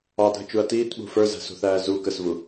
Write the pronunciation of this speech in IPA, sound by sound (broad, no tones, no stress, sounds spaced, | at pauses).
ɑ dʱ ə t͡ʃ u ɐ̯ t iː t ɓ ṳ f ə˞ z æ̤ s ṳ θ æː z u k ə s v u